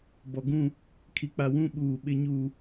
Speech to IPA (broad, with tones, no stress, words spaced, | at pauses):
bɔ˨ɡũ˦˨ | kʰi˨k͡pa˨ wũ˦ ɓuː˨ ɓɪ˦ ɲuː˨